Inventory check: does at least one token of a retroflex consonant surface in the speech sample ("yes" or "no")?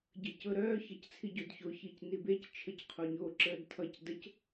no